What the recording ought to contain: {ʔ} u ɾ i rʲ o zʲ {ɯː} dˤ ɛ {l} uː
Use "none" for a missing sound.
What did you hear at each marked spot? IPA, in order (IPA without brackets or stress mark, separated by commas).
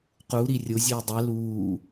q, ɯː, l